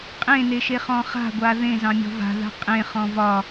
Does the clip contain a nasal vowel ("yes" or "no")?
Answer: yes